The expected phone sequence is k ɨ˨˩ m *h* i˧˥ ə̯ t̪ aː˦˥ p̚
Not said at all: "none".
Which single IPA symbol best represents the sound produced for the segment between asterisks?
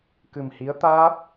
h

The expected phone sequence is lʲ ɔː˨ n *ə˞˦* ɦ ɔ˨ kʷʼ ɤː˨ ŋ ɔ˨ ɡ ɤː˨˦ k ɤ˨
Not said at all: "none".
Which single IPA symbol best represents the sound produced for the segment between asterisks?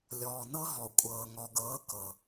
ɤ˦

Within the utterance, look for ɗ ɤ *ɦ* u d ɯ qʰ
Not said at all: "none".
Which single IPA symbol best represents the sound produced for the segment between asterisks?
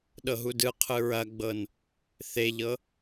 ɦ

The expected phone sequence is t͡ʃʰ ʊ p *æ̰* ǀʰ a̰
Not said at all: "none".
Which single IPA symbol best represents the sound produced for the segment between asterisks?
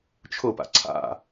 a̰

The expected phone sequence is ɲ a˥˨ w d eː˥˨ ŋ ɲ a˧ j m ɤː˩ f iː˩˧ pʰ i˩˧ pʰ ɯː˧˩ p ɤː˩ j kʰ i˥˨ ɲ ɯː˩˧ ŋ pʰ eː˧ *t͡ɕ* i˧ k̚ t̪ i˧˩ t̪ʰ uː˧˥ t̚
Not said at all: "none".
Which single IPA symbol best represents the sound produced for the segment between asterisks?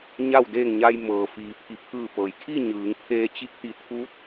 t͡ɕ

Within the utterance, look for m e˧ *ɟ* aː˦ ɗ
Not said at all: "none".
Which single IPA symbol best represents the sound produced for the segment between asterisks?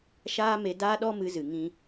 d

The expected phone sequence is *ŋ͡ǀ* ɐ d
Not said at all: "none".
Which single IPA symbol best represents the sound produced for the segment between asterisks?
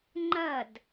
ŋ͡ǃ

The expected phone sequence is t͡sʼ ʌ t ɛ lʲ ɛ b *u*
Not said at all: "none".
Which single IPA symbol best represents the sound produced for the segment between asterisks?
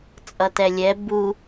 u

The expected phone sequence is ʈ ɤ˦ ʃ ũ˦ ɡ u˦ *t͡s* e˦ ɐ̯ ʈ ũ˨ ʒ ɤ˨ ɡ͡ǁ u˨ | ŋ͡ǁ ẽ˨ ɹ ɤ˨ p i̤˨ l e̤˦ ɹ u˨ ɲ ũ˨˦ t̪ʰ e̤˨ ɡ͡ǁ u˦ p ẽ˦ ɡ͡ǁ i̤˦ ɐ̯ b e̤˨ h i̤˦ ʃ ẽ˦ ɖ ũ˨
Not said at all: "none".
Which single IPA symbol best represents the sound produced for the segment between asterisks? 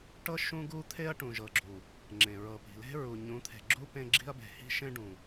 t̪ʰ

